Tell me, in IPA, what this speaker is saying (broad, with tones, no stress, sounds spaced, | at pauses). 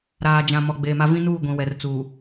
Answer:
ɾ aː˨ d͡ʒ ã˨ m ɔ˨ ɡ͡b eː˨ m a˦ v ĩ˦ n uː˦˨ ɡʷ ĩ˨ w ɛ˨ r t͡s uː˨